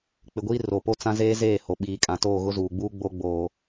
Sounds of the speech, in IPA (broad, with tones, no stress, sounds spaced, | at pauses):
k͡p ɪ˨ ɡʷ iː˦ r o˨ p o˦ t͡s ã˦ z eː˦ z eː˦˨ h o˨ ɓ iː˨ kʼ ã˨ t oː˦˨ ɣ ʊ˦ z uː˨ ɡ͡b uː˦ ɡ͡b o˦ ɡ͡b oː˨